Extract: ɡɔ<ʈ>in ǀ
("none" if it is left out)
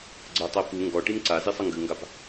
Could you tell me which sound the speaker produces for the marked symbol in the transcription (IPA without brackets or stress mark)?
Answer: ʈ